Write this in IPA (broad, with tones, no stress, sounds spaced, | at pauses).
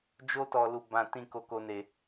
d͡ʒ o˦ t ɔ˧ l u˧ b ã˧ t ĩ˧ k o˧ k o˧ n e˧